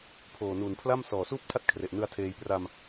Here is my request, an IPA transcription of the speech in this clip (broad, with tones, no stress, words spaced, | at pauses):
pʰoː˨˩nuː˨˩npʰla˥˩m sɔː˨˩suː˥˩p̚ tʰa˥˩t̚ kʰre˨˩ʔnɯ˧a̯tʰeː˧j pra˧m